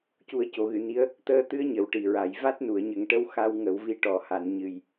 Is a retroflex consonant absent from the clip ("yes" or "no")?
no